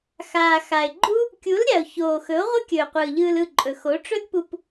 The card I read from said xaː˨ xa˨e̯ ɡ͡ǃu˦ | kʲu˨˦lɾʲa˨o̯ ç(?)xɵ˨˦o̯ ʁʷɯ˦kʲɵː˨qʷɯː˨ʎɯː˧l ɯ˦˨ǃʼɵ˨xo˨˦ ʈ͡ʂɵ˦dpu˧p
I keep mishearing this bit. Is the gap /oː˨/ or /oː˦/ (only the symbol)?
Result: oː˨